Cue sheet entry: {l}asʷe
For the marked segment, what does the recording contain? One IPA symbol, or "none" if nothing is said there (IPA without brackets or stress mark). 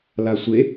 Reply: l